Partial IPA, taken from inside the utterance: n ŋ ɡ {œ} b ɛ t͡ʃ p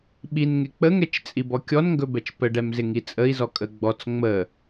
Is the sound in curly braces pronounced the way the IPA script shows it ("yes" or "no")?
no